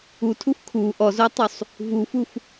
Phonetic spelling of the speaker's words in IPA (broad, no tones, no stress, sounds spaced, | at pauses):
u tʰ u f kʰ u ʔ ɔ z o tˤ u sˤ | v u f u f